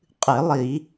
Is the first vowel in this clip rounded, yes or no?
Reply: no